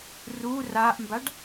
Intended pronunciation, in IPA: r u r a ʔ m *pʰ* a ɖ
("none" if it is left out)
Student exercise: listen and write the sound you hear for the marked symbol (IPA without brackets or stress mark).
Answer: b